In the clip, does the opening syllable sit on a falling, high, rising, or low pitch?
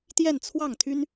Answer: falling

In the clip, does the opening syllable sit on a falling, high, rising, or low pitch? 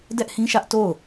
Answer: high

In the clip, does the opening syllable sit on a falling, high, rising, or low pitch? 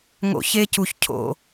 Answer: low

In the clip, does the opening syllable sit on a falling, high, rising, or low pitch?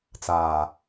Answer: low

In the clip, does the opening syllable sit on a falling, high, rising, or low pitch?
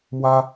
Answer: high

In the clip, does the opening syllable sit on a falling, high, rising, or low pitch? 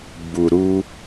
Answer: low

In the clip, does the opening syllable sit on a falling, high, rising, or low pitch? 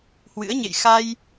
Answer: rising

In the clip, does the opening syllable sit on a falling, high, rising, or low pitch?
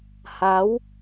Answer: rising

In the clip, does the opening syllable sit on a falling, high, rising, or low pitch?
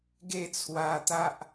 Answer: falling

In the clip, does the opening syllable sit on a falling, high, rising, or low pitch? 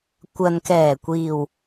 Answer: low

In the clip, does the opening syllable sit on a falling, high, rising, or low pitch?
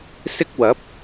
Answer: high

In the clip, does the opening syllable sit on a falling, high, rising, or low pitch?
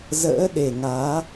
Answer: rising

